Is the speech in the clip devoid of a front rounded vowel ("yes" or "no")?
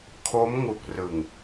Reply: yes